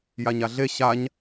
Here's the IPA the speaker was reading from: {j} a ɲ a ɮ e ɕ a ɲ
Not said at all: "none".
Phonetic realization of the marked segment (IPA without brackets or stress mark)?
j